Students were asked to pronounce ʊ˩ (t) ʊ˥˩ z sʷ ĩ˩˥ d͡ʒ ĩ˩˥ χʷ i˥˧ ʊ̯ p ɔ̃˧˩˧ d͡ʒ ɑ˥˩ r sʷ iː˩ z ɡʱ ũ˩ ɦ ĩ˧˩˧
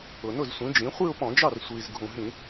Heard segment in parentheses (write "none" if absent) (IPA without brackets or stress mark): n